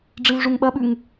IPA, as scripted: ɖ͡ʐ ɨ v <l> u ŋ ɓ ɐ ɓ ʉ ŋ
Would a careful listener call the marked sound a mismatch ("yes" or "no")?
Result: yes